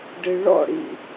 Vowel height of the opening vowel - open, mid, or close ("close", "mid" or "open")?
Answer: close